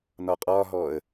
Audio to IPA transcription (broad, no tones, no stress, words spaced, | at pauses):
nɒqʼɒɦɔə̯